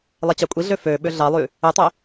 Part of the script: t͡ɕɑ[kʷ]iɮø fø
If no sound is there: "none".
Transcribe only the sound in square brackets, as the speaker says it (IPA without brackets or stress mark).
kʷʼ